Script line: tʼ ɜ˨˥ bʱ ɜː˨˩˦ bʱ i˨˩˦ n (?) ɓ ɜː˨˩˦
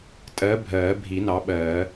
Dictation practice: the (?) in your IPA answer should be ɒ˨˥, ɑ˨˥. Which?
ɑ˨˥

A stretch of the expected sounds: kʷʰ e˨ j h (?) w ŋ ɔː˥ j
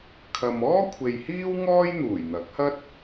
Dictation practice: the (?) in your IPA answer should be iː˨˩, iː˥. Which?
iː˥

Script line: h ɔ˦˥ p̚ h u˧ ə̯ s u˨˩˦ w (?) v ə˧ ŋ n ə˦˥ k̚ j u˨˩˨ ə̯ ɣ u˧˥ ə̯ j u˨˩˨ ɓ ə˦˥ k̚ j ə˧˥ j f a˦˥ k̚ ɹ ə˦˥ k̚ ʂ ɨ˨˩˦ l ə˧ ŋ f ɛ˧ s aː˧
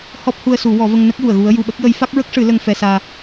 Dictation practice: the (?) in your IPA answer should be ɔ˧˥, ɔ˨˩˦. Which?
ɔ˨˩˦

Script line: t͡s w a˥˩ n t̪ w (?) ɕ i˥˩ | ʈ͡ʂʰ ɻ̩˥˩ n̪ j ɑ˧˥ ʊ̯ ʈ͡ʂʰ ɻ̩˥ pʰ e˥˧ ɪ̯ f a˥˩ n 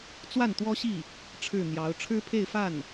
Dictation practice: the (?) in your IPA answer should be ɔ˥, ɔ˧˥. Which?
ɔ˥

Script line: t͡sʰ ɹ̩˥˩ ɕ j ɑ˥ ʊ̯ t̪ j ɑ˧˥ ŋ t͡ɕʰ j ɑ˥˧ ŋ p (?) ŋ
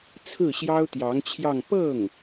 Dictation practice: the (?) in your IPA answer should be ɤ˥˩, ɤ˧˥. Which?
ɤ˥˩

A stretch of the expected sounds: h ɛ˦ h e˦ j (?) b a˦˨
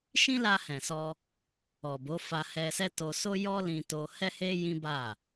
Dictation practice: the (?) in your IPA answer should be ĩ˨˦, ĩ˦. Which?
ĩ˦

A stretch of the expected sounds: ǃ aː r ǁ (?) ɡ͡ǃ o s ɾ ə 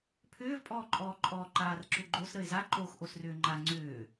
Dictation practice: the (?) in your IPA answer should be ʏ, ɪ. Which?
ʏ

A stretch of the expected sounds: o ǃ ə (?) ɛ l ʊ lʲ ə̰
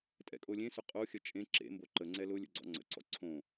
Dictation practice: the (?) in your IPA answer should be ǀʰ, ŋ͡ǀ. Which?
ŋ͡ǀ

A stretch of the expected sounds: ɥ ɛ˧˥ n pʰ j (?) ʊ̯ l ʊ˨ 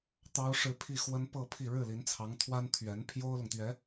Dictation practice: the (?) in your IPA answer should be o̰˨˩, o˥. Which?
o˥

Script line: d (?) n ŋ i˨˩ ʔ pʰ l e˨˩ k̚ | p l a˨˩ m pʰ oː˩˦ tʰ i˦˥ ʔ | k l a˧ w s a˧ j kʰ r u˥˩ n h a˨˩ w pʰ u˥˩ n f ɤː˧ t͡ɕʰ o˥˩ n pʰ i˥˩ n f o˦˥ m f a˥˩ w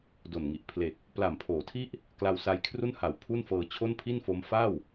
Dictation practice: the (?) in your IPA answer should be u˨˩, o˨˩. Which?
o˨˩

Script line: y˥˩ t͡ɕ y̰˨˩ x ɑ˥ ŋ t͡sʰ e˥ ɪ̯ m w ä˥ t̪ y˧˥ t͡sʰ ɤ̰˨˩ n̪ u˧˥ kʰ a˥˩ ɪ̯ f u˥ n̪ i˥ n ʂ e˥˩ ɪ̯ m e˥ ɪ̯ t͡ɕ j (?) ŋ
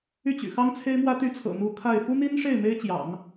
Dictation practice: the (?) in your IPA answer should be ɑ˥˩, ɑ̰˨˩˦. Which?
ɑ̰˨˩˦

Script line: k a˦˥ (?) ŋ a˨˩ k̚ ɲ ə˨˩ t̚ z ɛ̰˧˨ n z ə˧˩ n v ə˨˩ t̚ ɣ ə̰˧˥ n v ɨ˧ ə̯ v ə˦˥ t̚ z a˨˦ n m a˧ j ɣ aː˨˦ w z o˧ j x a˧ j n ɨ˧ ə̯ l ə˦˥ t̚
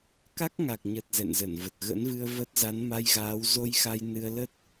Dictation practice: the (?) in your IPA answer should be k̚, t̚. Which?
k̚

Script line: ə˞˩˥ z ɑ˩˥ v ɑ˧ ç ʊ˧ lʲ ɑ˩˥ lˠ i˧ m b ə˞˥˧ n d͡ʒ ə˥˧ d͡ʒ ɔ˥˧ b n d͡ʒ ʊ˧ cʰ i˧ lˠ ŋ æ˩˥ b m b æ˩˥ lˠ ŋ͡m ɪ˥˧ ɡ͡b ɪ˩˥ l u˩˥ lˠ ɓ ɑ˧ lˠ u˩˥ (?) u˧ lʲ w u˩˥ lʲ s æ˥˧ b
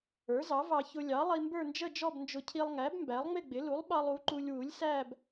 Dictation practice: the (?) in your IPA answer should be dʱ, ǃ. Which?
ǃ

